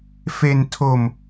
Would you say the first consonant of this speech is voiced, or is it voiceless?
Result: voiceless